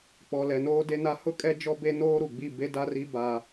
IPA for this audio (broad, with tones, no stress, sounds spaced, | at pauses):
k͡p ɔ˨ l ɛ˨ n oː˦ d e˦ n a˦ h ʊ˦ kʼ ɛ˦ d͡ʒ ɔ˦ b e˦ n oː˦ ɾ u˨ ɡ͡b i˦˨ b e˦ d a˦ r i˦ b a˦